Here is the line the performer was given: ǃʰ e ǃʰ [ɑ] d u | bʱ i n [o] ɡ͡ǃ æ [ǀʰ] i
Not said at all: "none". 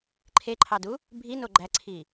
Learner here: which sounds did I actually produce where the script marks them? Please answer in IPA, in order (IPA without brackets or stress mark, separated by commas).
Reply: ɑ, o, ǀʰ